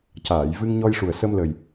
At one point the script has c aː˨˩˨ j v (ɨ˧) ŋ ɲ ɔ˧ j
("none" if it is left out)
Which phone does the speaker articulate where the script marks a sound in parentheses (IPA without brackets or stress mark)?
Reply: ɨ˧